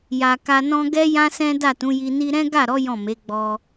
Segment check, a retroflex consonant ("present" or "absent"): absent